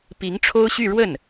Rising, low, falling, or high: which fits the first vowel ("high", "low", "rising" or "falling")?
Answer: rising